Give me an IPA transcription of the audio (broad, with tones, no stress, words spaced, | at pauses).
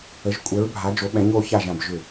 ə˧˥ʒkʷʼɛ˧˥ɹ bʱa˧˥d͡ʒo˧˥ɓɛ̃˧˥ɲ o˧˥ça˥˧ʒã˥˧b ʒʏ˥˧